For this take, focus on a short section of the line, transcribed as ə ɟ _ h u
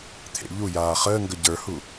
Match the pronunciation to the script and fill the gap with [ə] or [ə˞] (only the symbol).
ə˞